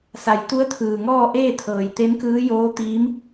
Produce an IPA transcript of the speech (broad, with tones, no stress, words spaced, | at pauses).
sa˩˧jt̪u˧˥ə̯t̪ʰɯː˩ŋɔː˥˨ ʔeː˥˨t̪ʰɤː˩j t̪e˧˥mkɯː˧˥joː˧˥t̪iː˧˥m